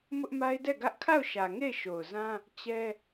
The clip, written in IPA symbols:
mʊ˦ʔma˦ɪ̯dɛ˦˨ɡä˦ʔ kʰa˦˨ʊ̯ʃä˨ ŋe˦˨ɪ̯ʃo˨ʊ̯zã˦ | t͡ɕɛ˦

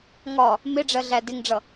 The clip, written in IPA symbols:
ŋɒ | mɪɖ͡ʐɜɮæ dɪŋɖ͡ʐʌ

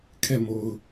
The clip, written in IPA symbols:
kʰɛ˦˨mo˨ʊ̯

